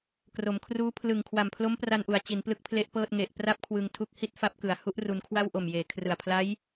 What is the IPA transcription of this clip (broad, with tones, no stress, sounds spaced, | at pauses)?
k r o˩˦ m kʰ r uː˦˥ pʰ l ɯ˨˩ ŋ kʰ w a˨˩ m pʰ l o˦˥ m p r a˧ n ʔ u˩˦ a̯ t͡ɕ i˩˦ n p l ɯ˥˩ k̚ pʰ l e˦˥ ʔ p ɤː˥˩ t̚ ŋ e˨˩ ʔ p r a˥˩ p̚ kʰ w ɯ˧ ŋ tʰ u˦˥ k̚ h i˥˩ t̚ f a˦˥ p̚ k ɯ˨˩ a̯ h u˥˩ ʔ r u˧ n kʰ w a˥˩ w ʔ o˨˩ m j eː˩˦ kʰ r ɯ˨˩ a̯ pʰ l a˦˥ j